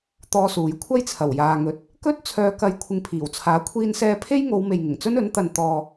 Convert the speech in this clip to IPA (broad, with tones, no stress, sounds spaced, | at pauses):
t̪ ɔː˥ s uː˨˥ j kʷʰ ɐ˥ j t͡sʰ ɐ˨˩ w j aː˨ ŋ ɵ˨ t̚ | k ɵ˥ t̚ t͡sʰ œː˧ k ɐ˧ j kʷʰ ɪ˧ ŋ pʰ iː˨˩ w t͡sʰ aː˨˥ kʷʰ iː˥ n s ɛː˥ pʰ e˥ j ŋ o˨˧ w m e˨ j ŋ ɪ˨˩ ŋ t͡s ɵ˥ n ɵ˨˥ n t̪ ɐ˨ n t̪ ɔː˨